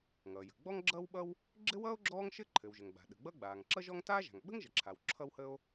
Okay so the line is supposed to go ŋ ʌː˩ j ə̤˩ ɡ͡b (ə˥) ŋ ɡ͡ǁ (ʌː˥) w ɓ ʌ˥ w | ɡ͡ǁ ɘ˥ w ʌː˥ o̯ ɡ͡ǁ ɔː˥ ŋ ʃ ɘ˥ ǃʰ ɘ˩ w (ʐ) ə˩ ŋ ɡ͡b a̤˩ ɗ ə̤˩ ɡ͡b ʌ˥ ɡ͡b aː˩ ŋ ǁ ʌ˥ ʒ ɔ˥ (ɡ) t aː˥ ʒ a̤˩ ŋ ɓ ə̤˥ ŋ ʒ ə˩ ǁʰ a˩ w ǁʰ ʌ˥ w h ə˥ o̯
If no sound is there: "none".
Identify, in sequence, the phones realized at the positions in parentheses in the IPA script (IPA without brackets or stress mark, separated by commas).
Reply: ɔ˥, ʌː˥, ʒ, ŋ